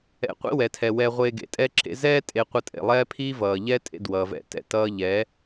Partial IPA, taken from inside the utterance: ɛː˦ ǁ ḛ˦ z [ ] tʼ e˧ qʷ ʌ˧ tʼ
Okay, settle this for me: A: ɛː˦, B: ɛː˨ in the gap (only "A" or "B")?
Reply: A